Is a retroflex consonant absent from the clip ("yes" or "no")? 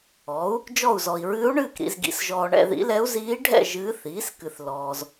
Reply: no